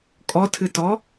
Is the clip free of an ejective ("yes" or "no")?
no